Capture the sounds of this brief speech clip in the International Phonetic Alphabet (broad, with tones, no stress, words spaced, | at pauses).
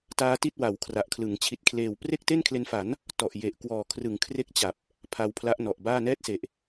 taː˦˥ti˥˩t̚ wa˩˦wkʰra˨˩ʔkʰlɯ˩˦ŋ t͡ɕʰi˨˩t̚kʰleː˨˩w pre˥˩k̚te˥˩nkʰle˧nfa˩˦n | tɔ˨˩ʔje˨˩ʔ kwɔː˨˩kʰrɯ˩˦ŋ kʰre˥˩k̚t͡ɕa˨˩p̚ | pʰa˧wpʰla˦˥ʔnɔ˨˩ʔbaː˥˩ nɛː˥˩t̚se˨˩ʔ